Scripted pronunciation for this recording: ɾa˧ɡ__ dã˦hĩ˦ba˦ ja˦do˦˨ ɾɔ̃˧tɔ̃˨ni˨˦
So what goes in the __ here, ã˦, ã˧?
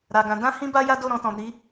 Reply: ã˧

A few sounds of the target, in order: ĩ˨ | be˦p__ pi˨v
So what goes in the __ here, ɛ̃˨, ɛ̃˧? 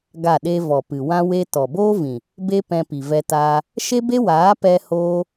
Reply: ɛ̃˧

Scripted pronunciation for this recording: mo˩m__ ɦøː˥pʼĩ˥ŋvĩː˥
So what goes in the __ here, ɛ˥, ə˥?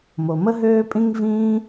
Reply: ə˥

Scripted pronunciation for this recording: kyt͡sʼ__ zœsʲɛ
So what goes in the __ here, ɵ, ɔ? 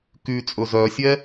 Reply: ɵ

